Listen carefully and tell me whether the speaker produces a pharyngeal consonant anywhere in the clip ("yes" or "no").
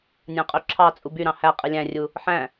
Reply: yes